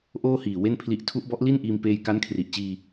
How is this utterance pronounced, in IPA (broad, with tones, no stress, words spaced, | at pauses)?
ʔoː˥˩hiː˨˩ we˥˩npʰli˦˥ʔ tʰu˦˥ʔbɔ˦˥ʔ li˥˩n ʔiː˧m peː˧jka˦˥n kʰri˨˩ʔt͡ɕiː˧